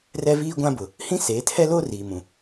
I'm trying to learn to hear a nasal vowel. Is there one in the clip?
yes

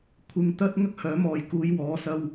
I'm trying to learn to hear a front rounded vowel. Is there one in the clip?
yes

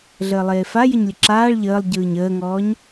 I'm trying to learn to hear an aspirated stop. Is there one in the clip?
no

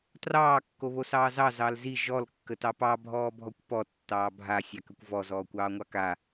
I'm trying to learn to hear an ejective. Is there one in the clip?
no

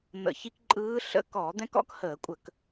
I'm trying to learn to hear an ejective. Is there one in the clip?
yes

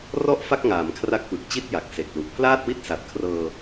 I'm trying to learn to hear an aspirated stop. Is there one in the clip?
yes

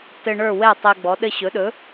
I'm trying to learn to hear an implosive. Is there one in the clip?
yes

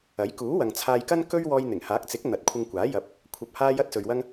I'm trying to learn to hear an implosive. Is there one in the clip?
no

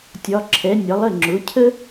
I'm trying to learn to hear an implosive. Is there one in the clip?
no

